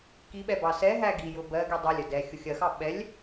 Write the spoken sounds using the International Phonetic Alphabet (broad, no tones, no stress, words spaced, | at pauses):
kiɓɛ bɑsɛɦæ ɡijʊ bɜ ɡidˤælʲə dɛ xʲʊxʲɜxɑ ɓɛlʲ